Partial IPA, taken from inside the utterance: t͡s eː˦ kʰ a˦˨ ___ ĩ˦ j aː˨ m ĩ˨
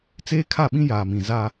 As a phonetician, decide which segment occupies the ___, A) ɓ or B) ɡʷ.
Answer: A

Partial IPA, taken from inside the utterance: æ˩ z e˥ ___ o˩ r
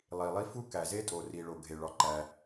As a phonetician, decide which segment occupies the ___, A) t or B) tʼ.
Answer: B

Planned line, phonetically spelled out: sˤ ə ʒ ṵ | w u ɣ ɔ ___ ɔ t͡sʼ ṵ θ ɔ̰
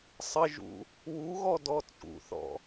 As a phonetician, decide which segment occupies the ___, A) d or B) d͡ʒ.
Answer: A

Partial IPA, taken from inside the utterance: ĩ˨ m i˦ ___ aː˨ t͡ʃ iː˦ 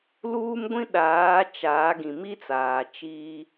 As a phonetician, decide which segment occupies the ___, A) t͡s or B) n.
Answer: A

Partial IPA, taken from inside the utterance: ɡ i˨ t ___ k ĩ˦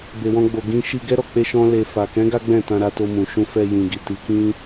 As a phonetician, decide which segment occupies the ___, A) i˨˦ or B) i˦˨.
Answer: A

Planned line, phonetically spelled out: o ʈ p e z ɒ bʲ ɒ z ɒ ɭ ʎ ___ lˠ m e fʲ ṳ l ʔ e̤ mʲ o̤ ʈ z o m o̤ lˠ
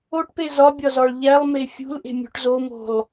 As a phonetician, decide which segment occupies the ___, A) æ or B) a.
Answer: A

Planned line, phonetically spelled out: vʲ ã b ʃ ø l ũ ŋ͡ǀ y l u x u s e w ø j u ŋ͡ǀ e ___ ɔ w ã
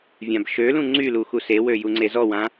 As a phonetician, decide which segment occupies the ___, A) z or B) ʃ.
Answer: A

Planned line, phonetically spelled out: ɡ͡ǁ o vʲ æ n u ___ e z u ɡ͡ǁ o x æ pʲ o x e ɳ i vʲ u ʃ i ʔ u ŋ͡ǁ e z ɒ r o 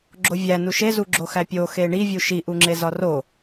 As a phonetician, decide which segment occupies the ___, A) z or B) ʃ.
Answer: B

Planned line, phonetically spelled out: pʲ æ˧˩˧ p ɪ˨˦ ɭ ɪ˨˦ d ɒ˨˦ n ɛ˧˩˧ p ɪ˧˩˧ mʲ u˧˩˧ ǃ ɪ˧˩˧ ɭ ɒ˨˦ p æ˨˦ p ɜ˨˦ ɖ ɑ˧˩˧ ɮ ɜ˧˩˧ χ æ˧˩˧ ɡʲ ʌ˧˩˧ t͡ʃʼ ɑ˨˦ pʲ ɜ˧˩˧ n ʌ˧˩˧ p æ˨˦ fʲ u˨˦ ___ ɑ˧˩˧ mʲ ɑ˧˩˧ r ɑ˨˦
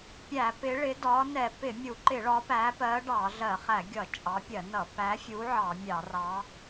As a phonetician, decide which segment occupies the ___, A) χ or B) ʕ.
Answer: B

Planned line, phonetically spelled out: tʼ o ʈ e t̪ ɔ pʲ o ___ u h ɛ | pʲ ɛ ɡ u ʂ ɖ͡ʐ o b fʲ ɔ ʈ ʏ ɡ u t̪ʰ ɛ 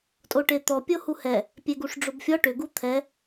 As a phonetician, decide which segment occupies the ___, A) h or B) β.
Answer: A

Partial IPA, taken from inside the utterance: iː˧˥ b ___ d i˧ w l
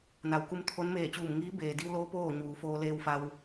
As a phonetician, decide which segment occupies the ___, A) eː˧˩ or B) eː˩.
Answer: B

